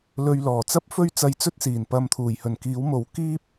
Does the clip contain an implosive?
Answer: no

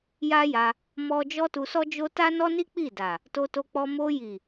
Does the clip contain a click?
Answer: no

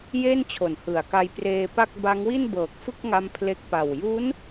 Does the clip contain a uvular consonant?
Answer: no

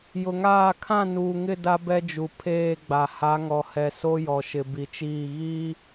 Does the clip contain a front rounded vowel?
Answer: no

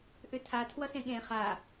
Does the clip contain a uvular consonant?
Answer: yes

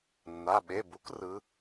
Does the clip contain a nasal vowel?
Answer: no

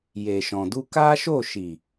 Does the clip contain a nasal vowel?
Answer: yes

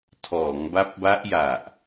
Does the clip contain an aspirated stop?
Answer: yes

